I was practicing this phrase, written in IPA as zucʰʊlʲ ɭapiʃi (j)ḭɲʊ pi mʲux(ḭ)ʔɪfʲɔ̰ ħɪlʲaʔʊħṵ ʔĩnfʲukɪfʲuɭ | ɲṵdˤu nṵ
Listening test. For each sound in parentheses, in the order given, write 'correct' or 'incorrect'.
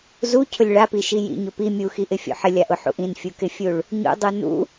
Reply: correct, incorrect

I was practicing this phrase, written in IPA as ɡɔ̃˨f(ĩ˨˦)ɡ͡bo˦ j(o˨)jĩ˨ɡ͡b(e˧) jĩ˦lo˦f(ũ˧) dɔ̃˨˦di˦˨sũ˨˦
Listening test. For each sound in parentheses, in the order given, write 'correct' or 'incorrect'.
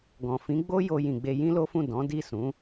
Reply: correct, incorrect, correct, incorrect

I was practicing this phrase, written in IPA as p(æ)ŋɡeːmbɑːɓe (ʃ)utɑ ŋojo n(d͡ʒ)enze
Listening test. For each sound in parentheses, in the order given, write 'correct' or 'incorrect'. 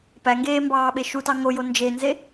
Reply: correct, correct, correct

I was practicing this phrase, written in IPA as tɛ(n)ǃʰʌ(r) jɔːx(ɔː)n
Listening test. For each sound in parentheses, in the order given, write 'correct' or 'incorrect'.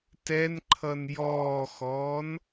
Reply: correct, incorrect, correct

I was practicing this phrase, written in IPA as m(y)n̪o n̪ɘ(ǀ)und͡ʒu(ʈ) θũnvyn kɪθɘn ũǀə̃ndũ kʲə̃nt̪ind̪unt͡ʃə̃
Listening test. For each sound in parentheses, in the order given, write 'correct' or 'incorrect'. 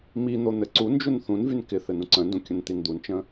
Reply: incorrect, correct, incorrect

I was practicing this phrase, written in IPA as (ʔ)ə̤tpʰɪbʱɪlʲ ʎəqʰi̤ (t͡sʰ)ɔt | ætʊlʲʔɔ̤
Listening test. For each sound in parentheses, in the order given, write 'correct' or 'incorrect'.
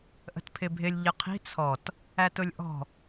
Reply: correct, correct

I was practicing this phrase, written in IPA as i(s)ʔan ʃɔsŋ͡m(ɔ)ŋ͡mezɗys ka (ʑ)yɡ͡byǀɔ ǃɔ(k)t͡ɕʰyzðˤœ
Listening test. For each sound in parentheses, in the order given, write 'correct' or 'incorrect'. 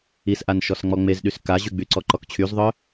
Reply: correct, correct, correct, correct

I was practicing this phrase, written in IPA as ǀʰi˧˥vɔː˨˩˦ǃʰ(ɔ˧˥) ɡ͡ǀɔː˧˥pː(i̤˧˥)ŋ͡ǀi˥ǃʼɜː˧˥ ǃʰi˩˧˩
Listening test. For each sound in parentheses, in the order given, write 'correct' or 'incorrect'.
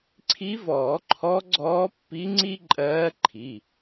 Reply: correct, incorrect

